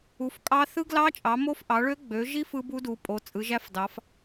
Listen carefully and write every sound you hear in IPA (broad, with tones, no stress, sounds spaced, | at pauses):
u˩˧ f kʼ ɑ˦˥ θ ɯ˦˥ ɡ l ɑ˦˥ t͡ʃʼ ɑ˩˧ m o˦˥ f ʔ ɑ˩˧ ɭ ø˦˥ ɡ͡b ø˩˧ ʒ i˦˥ f ɯ˦˥ b u˦˥ d u˩˧ pʼ o˩˧ t͡sʼ ɯ˩˧ ʒ æ˦˥ f d ɑ˩˧ f